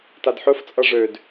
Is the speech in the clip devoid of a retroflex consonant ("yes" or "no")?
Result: no